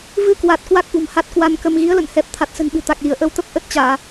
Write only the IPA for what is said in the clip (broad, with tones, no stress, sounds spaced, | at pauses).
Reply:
v ɨ˧ k w a˨˩ t̚ k w a˦˥ k̚ ʔ ṳ˨˩ m h a˦˥ t̚ k w a˧ n k ə˧ m ɣ i˨˦ ə̯ l ə̰˧˨ n h ɛ˨˩ p̚ t̪ʰ a˨˩ t̚ s ə̤˨˩ n ɓ ɨ̤˨˩ t̪ a˨˩ k̚ l i˧˩ ə̯ ʔ ə˧ w t̪ ə˦˥ p̚ ʔ ə˦˥ t̚ t͡ɕ aː˧˩˨